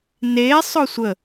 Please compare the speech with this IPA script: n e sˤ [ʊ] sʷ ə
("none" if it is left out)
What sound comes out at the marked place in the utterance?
ʊ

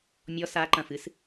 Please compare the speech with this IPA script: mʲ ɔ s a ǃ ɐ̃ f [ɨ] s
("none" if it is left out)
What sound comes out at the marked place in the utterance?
ɨ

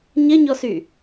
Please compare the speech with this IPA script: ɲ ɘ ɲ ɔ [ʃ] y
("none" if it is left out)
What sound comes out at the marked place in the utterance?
s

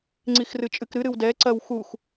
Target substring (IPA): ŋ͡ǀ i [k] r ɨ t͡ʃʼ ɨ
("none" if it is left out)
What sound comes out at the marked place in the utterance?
x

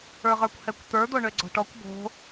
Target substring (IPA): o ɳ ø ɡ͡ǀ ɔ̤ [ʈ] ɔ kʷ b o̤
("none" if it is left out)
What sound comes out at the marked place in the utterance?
ʈ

